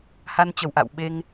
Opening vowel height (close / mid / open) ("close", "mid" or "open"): open